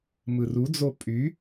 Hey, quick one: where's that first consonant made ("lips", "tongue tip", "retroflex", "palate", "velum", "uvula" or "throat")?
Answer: lips